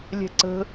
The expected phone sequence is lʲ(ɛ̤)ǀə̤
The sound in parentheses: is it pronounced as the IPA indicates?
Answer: yes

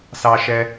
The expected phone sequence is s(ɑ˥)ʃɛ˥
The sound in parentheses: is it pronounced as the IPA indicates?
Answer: yes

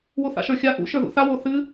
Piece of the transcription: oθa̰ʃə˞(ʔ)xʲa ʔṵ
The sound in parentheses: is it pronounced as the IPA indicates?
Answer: no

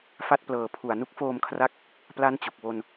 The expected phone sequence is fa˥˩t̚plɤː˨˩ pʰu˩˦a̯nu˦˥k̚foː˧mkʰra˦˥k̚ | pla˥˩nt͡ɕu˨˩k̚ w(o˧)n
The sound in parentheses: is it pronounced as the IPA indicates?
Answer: yes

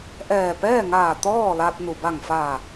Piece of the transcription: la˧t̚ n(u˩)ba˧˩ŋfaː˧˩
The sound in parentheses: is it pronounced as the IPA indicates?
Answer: yes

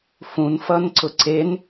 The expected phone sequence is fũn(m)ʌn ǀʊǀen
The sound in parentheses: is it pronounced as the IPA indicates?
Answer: no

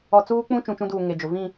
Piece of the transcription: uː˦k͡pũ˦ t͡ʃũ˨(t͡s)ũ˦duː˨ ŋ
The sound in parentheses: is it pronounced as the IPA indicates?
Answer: no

